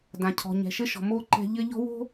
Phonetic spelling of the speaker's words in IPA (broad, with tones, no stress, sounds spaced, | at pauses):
d ã˨ cʰ ɔ̤˨ ɲ ɛ̤˨ ʃ ɘ˦ ʃ ɔ̤˨ m o˦ ǃ ɛ̤˦ ʎ ɘ˦ ʎ ɔ̤˦ w o̤˦